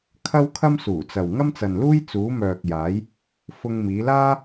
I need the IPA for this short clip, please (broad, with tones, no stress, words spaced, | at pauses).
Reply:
kʰɐ˥wkʰɐ˥m suː˨˩t͡sɐ˨w ŋɐ˥mt͡sɐ˨nluː˥j t͡suː˨˧mœː˨k̚jaː˨˧j | fʊ˧ŋ miː˨˧laː˥